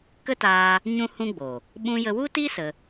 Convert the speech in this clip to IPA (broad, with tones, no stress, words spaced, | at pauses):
kə˦taː˧ | ɲũ˦hũ˦ɡ͡boː˨ | ɓũ˧jə˧wu˦ti˦ sə˧